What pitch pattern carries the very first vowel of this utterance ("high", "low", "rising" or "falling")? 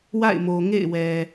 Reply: falling